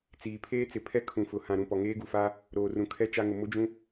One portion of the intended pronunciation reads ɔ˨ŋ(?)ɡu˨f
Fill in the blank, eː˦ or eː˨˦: eː˦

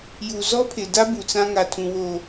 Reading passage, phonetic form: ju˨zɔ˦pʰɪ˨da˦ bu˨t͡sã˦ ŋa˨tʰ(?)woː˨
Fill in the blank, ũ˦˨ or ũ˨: ũ˨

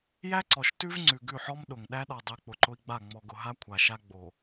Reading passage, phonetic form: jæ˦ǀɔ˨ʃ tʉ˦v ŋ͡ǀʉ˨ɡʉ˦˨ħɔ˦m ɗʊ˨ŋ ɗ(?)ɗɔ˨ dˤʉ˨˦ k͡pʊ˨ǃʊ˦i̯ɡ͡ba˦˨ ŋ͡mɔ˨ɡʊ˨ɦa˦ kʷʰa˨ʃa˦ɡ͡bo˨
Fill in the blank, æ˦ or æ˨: æ˦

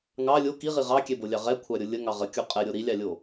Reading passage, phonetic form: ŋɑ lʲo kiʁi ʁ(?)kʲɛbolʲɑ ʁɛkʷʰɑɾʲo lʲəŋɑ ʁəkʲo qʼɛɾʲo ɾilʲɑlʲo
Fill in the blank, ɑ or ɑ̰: ɑ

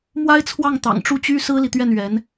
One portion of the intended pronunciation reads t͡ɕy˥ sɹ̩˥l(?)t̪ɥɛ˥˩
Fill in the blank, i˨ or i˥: i˨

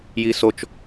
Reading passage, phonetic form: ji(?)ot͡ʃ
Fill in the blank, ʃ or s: s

